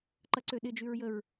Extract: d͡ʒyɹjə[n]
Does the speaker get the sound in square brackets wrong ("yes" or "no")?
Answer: yes